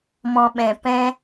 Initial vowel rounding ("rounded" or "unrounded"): rounded